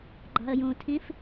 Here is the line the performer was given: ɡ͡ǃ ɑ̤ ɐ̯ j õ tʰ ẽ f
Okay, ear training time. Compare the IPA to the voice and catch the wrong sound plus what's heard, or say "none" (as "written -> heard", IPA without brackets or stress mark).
none